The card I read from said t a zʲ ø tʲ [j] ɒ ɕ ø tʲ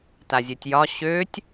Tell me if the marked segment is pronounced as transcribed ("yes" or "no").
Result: yes